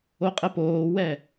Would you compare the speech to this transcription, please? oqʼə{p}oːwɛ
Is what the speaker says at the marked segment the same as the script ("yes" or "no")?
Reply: yes